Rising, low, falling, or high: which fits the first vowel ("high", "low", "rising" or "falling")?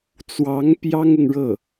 rising